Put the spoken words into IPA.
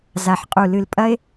z a˨ ħ qʼ u˨ l ɨ˨ l pʼ ɐ˦ e̯

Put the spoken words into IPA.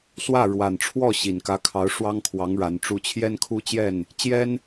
s w ä˥˩ ɻ w a˨˩ n ʈ͡ʂʰ w ɔ˥˩ ɕ i˨˩ n k ä˧˥ kʰ ɑ˧˥ ʊ̯ ʂ w ɑ˥ ŋ kʰ w ɑ˧˥ ŋ ɻ a˧˥ n ʈ͡ʂ u˥ t͡ɕʰ j ɛ˥ n kʰ u˥ t͡ɕ j ɛ˥˩ n | t͡ɕ j ɛ˥ n

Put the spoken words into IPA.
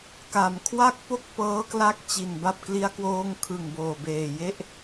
k a˩˦ m kʰ w a˥˩ k̚ p o˥˩ k̚ p ɤː˦˥ k l a˦˥ k̚ t͡ɕ i˨˩ n b a˥˩ p̚ k l i˧ a̯ k w oː˧ ŋ kʰ ɯ˨˩ ŋ b oː˨˩ b eː˨˩ j e˥˩ ʔ

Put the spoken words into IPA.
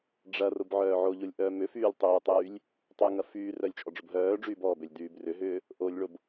ɖ͡ʐ ɐ r ʊ b ʕ œː ʕ o ʎ o lʲ ʔ œː m ʏ f yː lʲ tˤ yː tˤ yː lʲ | tˤ y ŋ ɐ f yː r œ lʲ t͡ʃʼ ɔ ɖ͡ʐ ʊ b ɦ œː ɖ͡ʐ yː b ɔː b ø lʲ d yː b r ʏ ɦ ʏː | ʔ o lʲ ɭ o b

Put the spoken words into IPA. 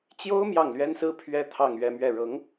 t͡ɕ j o˥ ʊ̯ m j ɑ˥˩ ŋ l ɥ ɛ˥ n s ɹ̩˥ pʰ ɥ ɛ˥ t̪ʰ ɑ˥˧ ŋ ɥ ɛ˥˧ m ɥ ɛ˥˩ ɻ ɤ˧˥ ŋ

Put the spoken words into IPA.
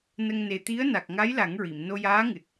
n ə˧ ŋ n e˨˩ t̪ i˧˥ ə̯ n a˨˩ k̚ ŋ a˧˥ j l a˨˩˦ ŋ ɹ i˨˩˨ m n o˧ j aː˧˥ ŋ ɨ˨˩ t̚

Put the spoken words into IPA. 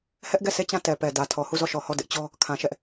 h ɛ˦ ʔ ɡ ɛ˦˨ sʰ e˦˨ t͡ɕ ã˦˨ t ɛ˨ p ɛ˨ d ä˨ tʰ ɔ˨ h u˦˨ z ɔ˦˨ ʃ ɔ˨ h ɔ˦˨ d ɪ˦ ʔ t͡ɕ ɔ˦ | kʰ ã˨ ʃ ɛ˦ ʔ

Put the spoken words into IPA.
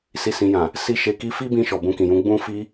s i˨ s ĩ˨ j ã˨ | s i˧ ʃ e˨ k i˧ f i˦ b ĩ˧ ʃ ɔ˨ b ũ˧ k ĩ˨ j ũ˨˦ ɡ͡b ũ˦ f i˧

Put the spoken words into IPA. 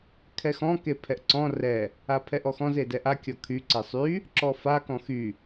kʰ ɛ x ɔ̃ k e pʰ ɛ ʔ ǀ ɔ̃ r ɛ | a pʰ ɛ ʔ ɔ x ɔ̃ z e d ɛ ʔ a kʲ ɔ kʰ y ǀ e sˤ y | ǁ ɔ f a k ɔ̃ x y

